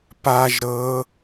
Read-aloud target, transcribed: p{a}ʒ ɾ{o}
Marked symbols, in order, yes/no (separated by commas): yes, no